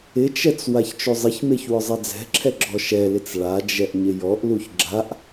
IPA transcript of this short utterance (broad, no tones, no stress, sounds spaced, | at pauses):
ɪ t͡ʃ ɛ t͡s w a ç t͡ʃ o zˤ ɪ ç m e ç w ʊ zˤ ɛ d͡z ɛ̤ ǁʰ ɛ ɡ͡ǁ ɔ ʃ ɛ l ɪ t͡s ɭ a d͡ʒ ɛ ʔ ɲ ɪ j ɔ ʔ l u ç ɡ͡ǁ a ʔ